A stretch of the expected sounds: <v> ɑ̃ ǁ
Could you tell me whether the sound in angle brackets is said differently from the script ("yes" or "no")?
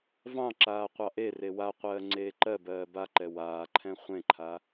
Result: no